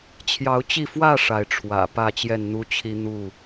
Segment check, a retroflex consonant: present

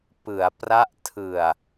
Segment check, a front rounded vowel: absent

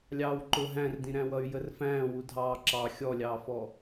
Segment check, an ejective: absent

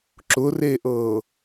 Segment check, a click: present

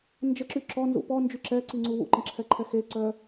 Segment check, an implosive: absent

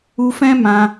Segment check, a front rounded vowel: absent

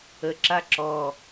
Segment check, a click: present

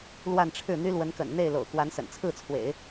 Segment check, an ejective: absent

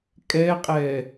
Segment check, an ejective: present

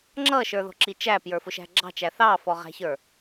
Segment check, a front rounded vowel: absent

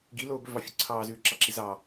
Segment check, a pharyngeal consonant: absent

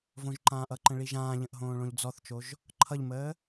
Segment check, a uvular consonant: absent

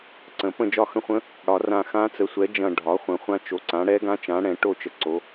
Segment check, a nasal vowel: present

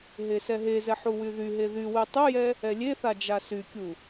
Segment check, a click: absent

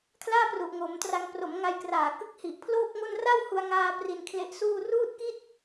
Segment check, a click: absent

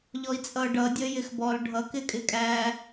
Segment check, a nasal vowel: absent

